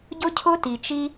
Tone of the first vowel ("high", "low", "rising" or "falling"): high